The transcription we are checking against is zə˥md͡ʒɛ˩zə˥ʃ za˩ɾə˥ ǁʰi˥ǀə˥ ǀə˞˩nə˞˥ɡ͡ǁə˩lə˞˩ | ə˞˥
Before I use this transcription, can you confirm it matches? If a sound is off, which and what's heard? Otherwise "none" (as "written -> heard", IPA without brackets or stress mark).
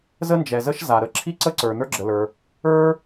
m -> n